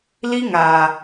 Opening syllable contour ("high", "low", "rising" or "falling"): high